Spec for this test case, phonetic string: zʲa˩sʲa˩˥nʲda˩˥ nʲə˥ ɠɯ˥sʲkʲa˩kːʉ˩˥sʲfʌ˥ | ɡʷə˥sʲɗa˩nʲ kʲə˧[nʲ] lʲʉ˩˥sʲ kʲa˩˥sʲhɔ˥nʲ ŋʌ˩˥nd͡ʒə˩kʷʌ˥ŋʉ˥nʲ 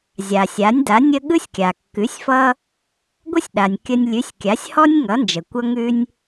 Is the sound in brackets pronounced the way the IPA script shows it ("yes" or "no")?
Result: yes